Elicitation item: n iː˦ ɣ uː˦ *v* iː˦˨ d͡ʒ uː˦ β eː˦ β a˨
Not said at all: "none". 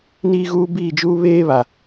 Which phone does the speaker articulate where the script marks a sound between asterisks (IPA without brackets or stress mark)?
b